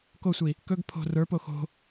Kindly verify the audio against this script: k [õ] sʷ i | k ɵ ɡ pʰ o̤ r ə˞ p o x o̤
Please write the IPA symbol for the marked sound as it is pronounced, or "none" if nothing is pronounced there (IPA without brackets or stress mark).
o